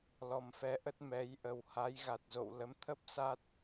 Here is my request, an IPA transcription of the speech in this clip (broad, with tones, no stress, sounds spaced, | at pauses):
l ɔ˨˩ m f ɛ˨˦ ʔ ə˦˥ t̚ m ɛ˨˦ j ʔ ə˨˩ w h a˨˦ j ɣ a˨˩ t̚ z o̰˧˨ w l ə˨˦ m t̪ʰ ə˦˥ p̚ s a˦˥ t̚